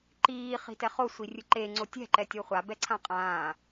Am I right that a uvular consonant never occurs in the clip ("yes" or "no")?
no